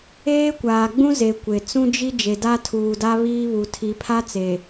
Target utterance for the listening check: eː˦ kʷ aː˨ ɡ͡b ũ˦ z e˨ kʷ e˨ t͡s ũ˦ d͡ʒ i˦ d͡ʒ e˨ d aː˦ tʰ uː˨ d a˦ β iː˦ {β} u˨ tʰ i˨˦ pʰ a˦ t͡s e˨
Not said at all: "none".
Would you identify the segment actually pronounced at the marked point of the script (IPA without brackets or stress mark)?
β